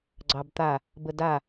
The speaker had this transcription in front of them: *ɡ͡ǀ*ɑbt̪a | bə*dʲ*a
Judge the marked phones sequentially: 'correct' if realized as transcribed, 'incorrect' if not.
correct, incorrect

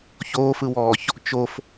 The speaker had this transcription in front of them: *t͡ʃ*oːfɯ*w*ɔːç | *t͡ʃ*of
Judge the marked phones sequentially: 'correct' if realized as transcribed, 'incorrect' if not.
incorrect, correct, correct

